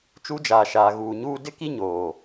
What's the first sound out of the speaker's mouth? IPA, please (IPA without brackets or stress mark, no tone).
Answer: t͡ʃ